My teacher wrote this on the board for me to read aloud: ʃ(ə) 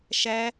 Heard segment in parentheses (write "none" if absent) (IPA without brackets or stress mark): æ